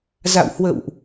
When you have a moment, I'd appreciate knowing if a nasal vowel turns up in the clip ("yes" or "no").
no